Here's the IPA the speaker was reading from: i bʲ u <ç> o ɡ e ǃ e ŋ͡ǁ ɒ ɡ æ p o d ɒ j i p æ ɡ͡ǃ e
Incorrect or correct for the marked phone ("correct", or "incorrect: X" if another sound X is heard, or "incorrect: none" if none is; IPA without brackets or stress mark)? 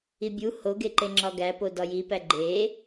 incorrect: h